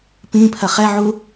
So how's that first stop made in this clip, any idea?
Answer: plain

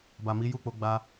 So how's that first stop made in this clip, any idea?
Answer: plain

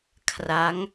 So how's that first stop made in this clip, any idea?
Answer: aspirated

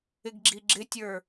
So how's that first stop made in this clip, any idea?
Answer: plain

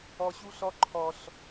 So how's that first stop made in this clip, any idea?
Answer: click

